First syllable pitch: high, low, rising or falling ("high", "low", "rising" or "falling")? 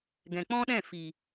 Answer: low